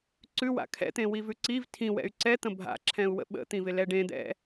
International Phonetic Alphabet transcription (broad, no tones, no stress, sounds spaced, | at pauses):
ǀ ʉ w a̰ kʰ ɛ̰ t̪ ẽ w i v ʉ ǀ i v tʰ ĩ w ɛ̰ y̯ ǀ ɛ t̪ ə̃ bʱ a̰ ǁʰ ɛ̃ u̯ w ə̰ ɓ ə̰ t̪ ĩ v ɪ l ɛ ɖ ẽ d̪ ɛ̰